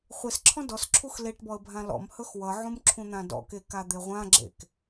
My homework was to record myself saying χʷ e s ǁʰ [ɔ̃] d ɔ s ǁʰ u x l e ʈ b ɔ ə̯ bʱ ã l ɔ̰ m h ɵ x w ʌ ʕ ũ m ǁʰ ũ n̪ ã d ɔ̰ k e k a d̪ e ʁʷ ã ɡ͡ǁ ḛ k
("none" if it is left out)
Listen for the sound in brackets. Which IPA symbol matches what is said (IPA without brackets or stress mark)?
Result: ɔ̃